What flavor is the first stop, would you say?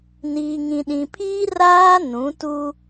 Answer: implosive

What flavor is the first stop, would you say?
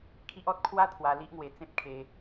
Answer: aspirated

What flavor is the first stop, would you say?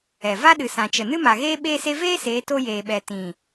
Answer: implosive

